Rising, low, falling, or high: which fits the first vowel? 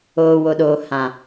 low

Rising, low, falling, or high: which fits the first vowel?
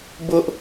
high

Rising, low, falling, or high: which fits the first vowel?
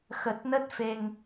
low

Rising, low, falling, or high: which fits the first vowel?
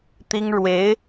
high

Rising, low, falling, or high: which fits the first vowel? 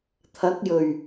rising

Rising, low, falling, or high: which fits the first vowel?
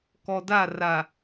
low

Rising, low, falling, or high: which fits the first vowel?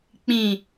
low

